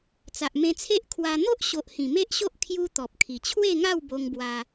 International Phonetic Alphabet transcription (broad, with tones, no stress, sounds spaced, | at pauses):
t͡s a˨ ʔ m ẽ˧ t͡sʰ e˦ ʔ kʰ w a˧ n̪ o˦ ʔ ɕ o˨ ʔ h ĩ˨˩ m e˦ ʔ ɕ o˦ ʔ kʰ j u˦ t̪ ɔ˨ p̚ kʰ i˨˩ t͡ɕʰ w e˥˧ ŋ a˥˧ w b o˧ ŋ b w a˧